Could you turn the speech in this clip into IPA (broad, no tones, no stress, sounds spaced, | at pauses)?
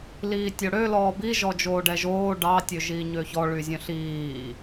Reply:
l iː tʲ o ɽ ø l ɔː b i ʒ ɔ d͡ʒ oː ɖ ɛ ʒ oː ɖ ɑ tʲ ø ʒ iː ɲ ø ç ɔ ɭ y zʲ œ̃ ɬ iː